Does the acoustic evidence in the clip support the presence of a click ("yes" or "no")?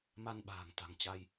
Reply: no